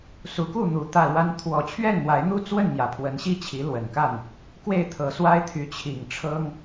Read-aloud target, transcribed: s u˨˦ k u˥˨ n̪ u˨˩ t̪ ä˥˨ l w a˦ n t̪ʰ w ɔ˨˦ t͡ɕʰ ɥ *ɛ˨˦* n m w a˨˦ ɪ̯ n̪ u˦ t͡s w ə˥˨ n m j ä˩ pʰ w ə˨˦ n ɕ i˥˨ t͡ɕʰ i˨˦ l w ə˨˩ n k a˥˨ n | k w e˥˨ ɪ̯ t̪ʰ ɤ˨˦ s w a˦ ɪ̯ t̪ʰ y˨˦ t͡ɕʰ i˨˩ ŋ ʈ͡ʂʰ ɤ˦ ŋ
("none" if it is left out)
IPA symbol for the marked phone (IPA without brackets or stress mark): ɛ˥˨